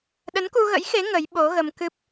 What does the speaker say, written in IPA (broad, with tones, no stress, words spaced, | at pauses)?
ɗə˨˦nku˧ɣə̰˧˥jxe˨˦ ŋə˨˦j ɓo˨˦ɣə˧mkɨ˦˥p̚